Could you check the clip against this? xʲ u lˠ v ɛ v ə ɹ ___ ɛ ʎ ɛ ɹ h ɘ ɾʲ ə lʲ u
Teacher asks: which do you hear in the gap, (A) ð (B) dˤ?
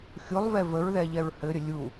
A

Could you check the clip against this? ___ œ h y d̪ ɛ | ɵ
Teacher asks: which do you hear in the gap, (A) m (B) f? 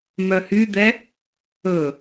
A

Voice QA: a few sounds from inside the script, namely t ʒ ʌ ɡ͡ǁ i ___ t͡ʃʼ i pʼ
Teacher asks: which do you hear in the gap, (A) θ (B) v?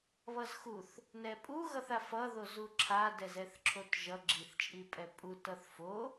A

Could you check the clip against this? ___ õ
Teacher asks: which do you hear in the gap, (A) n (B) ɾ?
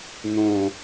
A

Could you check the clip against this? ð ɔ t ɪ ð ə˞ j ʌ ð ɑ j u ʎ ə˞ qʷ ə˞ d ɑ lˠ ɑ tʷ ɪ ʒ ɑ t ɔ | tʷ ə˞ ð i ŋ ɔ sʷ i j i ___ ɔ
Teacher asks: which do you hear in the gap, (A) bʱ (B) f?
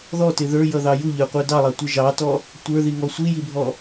A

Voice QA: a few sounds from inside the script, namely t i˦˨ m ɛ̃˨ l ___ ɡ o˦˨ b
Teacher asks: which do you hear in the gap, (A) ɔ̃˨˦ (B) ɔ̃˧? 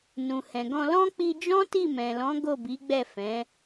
A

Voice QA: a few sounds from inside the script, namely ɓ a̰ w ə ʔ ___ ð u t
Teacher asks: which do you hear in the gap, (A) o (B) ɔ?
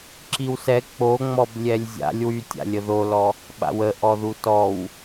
B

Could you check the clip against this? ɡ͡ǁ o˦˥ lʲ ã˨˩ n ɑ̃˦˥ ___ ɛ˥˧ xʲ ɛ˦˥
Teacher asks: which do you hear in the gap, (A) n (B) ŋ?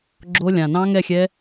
B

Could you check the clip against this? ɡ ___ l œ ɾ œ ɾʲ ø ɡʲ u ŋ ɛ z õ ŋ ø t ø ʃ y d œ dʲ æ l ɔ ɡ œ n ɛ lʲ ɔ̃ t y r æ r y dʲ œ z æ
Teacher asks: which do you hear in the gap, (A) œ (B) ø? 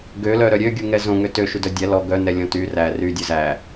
B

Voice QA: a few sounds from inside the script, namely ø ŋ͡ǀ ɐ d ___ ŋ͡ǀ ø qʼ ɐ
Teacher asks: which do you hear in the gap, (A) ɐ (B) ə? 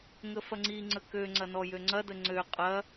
B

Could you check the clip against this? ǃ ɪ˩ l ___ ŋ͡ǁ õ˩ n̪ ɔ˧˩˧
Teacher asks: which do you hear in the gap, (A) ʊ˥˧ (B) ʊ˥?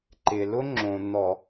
B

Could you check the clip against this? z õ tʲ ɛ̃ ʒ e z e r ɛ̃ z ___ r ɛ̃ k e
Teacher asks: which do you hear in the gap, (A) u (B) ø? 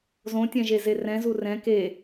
A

